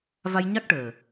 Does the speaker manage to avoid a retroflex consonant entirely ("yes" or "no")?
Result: no